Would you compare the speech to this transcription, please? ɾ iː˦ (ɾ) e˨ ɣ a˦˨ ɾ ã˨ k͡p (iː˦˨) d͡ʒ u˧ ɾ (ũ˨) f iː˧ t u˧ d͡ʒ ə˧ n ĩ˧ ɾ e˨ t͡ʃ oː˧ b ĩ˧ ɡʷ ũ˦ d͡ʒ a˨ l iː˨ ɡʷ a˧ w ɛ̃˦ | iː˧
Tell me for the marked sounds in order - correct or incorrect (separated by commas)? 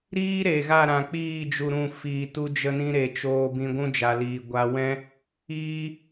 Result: correct, correct, incorrect